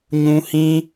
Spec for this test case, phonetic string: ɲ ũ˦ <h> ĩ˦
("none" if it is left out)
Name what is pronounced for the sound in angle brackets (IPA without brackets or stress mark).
h